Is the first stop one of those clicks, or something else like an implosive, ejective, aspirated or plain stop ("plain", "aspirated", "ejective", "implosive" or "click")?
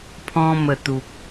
aspirated